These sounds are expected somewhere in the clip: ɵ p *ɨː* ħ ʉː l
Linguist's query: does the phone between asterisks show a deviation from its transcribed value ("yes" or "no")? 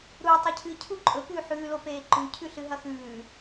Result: yes